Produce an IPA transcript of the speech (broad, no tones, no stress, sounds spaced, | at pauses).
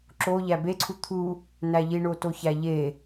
ǁ o ʎ æ b e ǀʰ u t̪ʰ u | n æ ʎ i ɳ o t o ç æ ʎ e